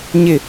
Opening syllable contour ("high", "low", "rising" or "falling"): falling